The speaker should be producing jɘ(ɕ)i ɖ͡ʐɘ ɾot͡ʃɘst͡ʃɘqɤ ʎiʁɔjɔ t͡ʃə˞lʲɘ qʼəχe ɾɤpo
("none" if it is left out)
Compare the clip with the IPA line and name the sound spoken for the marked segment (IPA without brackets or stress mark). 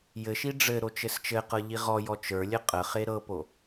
ʃ